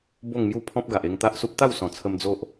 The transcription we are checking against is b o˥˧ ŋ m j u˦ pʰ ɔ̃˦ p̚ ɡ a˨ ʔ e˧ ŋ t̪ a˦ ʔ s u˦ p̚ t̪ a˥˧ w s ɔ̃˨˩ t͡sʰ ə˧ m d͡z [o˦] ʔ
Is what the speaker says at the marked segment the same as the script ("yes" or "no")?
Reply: yes